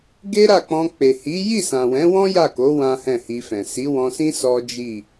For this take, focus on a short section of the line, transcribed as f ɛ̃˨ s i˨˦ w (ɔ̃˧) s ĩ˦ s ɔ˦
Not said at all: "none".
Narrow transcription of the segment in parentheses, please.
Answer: ɔ̃˧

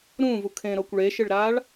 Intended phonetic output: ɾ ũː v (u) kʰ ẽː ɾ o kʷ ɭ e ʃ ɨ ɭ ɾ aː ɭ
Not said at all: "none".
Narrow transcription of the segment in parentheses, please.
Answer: u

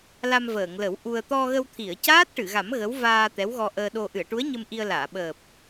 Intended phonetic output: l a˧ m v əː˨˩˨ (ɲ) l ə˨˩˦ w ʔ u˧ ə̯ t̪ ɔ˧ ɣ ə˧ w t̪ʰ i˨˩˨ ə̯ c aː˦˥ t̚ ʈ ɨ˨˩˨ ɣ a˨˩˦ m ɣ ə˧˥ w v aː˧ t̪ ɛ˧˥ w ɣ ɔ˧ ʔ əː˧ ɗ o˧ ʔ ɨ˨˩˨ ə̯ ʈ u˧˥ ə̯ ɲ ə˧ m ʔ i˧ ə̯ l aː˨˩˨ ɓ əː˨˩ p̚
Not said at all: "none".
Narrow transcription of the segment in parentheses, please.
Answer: ŋ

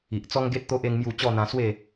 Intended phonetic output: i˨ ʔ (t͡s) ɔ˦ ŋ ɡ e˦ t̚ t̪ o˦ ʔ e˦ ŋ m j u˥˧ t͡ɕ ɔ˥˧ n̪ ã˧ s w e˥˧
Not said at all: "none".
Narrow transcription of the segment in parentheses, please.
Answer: t͡s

